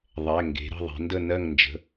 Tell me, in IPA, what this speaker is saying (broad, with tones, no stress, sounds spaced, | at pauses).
ðˤ ɛ˩˧˩ ŋ ɡ e̤˩˧ ɾ ə̤˥˨ ðˤ i̤˩˧ n d ə˥˨ n ɜ˥˨ ŋ n d͡ʒ ə̤˩˧˩